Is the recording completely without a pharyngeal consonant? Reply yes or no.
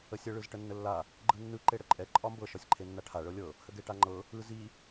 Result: yes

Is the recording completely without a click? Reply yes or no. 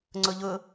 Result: no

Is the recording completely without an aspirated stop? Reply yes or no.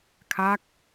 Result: no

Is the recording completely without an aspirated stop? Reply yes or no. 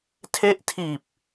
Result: no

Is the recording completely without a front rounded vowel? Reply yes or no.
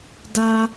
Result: yes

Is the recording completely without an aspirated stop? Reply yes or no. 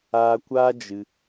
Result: yes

